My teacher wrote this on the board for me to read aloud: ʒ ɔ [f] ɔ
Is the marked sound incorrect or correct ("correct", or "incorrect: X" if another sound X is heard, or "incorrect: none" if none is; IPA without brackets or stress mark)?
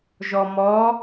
incorrect: m